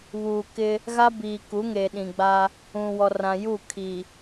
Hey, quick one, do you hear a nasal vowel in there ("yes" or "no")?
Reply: yes